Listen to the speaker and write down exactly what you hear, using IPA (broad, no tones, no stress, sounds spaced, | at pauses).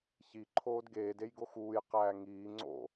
ç i ǃʰ oː d ɡ eː d e j ɡ o x uː j q æː ŋ iː ŋ͡ǀ o̰